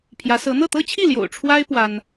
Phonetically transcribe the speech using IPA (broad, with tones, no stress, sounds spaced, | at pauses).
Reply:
pʰ j ä˧˥ s ɤ˧˥ n̪ ɤ˥˩ t̪ ɤ˥ t͡ɕʰ i˥˩ l j o̰˨˩ ʊ̯ ʈ͡ʂʰ w a˥ ɪ̯ p w a˥ n